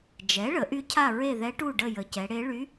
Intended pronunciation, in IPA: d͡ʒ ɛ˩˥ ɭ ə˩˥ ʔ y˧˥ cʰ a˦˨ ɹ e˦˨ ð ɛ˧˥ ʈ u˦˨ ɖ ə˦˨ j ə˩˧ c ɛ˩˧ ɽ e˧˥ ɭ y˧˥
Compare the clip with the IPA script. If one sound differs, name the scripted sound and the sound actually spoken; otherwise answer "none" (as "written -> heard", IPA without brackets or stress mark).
none